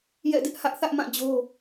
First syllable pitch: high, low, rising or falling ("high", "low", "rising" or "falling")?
falling